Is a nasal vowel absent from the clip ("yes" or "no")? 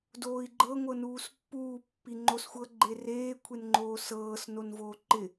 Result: yes